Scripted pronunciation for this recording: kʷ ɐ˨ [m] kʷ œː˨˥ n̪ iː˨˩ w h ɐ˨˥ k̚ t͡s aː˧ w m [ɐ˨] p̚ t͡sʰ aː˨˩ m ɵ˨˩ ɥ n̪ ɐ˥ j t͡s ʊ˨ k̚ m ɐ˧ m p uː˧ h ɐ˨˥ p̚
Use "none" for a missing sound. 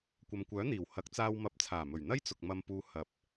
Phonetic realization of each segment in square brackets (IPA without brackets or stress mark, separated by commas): m, ɐ˨˥